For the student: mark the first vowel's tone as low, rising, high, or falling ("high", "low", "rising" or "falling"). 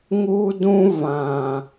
high